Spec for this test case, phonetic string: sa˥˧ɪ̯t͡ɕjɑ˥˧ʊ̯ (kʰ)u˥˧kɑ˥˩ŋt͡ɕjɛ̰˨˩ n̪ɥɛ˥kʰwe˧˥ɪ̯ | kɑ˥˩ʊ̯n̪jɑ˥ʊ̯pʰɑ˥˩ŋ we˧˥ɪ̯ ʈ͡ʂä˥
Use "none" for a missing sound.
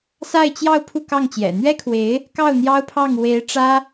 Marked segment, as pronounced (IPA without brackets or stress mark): pʰ